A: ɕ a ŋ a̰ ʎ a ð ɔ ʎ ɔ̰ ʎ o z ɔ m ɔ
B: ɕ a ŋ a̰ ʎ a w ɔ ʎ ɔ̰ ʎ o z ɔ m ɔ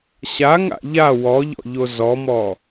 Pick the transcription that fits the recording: B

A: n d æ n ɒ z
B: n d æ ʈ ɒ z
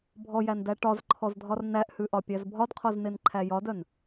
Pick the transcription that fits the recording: B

